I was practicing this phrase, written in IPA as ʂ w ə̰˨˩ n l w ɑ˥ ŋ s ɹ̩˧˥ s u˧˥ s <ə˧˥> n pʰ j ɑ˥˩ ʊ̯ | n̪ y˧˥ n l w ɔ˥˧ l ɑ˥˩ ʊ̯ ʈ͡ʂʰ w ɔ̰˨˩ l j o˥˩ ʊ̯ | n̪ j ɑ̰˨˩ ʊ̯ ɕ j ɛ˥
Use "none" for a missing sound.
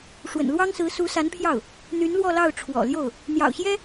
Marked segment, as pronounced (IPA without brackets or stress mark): a˧˥